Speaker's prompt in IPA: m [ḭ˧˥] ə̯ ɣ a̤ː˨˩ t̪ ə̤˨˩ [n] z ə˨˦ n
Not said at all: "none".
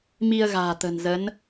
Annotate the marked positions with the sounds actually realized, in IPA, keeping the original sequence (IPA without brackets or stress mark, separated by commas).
i˧, n